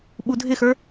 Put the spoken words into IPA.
ɓ u dʱ ɪ x ə˞

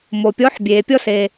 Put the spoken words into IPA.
m o˨ pʲ ɔː˧˥ ħ bʲ eː˨ pʲ ɔ˥ s eː˨

